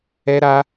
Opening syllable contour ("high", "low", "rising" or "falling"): high